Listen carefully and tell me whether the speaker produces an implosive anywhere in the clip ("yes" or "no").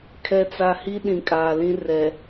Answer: yes